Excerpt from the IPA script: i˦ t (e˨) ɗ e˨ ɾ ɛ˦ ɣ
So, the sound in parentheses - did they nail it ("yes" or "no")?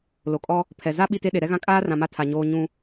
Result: no